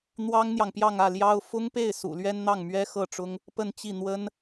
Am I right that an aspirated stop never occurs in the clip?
yes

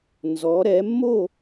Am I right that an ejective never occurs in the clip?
yes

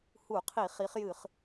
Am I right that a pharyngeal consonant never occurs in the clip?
yes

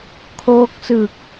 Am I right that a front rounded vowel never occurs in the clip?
yes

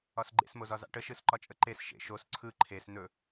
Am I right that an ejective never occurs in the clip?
no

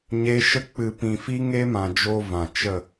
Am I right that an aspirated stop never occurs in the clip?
yes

